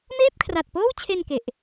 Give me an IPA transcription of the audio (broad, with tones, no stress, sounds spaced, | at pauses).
m eː˥˩ p̚ kʰ r a˨˩ t̚ p oː˥˩ w t͡ɕʰ e˧ n k e˨˩ ʔ